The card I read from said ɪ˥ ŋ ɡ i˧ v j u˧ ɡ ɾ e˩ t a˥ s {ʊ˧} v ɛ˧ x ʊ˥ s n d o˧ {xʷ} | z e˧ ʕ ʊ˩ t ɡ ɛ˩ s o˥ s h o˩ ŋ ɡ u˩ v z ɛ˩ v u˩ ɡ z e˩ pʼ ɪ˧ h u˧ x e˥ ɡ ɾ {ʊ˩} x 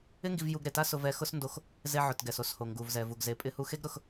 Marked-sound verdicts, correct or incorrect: correct, incorrect, correct

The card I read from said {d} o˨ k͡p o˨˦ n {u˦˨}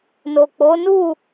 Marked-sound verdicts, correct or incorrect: incorrect, correct

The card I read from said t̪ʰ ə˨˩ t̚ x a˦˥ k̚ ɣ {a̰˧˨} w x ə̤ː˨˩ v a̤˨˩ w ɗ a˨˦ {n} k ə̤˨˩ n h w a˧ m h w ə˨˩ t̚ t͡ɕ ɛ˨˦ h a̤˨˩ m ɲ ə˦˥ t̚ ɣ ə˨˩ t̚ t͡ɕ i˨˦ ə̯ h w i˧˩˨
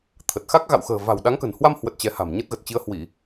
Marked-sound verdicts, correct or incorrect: correct, incorrect

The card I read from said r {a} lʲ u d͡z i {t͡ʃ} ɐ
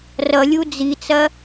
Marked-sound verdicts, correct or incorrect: incorrect, incorrect

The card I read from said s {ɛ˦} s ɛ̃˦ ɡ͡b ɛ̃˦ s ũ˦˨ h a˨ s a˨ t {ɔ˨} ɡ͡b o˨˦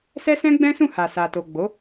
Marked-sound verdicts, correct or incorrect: correct, incorrect

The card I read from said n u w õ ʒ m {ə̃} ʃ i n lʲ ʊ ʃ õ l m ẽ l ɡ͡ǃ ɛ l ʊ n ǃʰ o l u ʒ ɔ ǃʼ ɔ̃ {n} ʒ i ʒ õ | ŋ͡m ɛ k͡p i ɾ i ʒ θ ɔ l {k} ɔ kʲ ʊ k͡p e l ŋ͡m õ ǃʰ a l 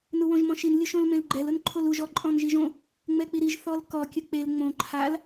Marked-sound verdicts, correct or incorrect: incorrect, correct, correct

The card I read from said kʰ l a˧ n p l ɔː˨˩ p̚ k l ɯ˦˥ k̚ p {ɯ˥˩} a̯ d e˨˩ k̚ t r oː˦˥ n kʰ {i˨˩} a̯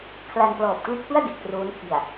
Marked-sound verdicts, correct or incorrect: correct, correct

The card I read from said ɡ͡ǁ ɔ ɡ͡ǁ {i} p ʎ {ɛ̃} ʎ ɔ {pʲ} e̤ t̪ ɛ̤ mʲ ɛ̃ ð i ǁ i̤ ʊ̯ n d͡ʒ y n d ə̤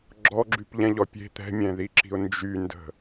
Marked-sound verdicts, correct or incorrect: incorrect, correct, correct

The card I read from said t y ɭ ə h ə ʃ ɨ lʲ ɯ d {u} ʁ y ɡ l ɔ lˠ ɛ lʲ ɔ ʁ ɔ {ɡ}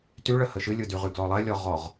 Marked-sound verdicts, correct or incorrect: incorrect, incorrect

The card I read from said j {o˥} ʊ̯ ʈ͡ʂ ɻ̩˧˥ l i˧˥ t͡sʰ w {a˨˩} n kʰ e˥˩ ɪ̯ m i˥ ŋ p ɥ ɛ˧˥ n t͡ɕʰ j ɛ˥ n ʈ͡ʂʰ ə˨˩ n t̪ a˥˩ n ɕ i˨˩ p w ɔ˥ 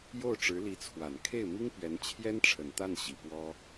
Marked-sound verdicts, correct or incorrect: incorrect, correct

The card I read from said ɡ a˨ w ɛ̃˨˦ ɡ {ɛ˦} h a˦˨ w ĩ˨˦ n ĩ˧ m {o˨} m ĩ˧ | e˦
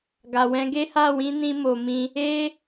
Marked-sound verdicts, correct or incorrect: incorrect, correct

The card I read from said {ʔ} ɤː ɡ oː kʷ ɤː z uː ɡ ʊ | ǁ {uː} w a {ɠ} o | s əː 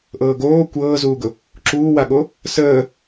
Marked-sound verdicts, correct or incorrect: correct, correct, correct

